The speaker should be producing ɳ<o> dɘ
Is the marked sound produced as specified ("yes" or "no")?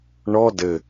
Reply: no